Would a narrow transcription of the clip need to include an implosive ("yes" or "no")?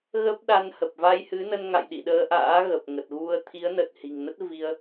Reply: yes